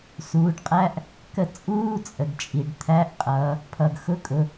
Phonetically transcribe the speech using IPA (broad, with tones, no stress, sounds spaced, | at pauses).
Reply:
s uː˩˧ ɖ qʼ æ˧˥˧ ʔ | k ə˥˩ t͡sʼ uː˧˥˧ t͡sʼ ə˩ ɡ t͡ʃʼ i˩ ɖ t̪ʰ æ˧˥˧ ʔ qʼ ʌː˩˧ | pʰ ʌ˩ ɡ x ʊ˧˥˧ kʼ ʊ˩˧